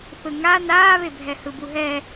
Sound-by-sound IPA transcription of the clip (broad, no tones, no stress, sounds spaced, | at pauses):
θ ɯ ŋ a n aː β e bʱ ɛ h ɯ b u ɦ ɛ